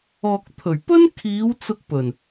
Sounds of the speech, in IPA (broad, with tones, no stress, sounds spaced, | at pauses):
ɔː˨ k̚ t̪ʰ ɵ˨˩ ɥ p ɵ˥ n kʰ iː˨˧ w t͡s ʊ˧ k̚ p ɵ˨˩ n